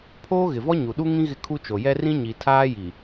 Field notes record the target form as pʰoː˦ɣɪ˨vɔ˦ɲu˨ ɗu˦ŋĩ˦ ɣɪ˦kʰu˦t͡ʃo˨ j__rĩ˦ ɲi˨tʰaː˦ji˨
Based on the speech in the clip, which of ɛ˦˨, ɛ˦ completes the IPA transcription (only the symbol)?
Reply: ɛ˦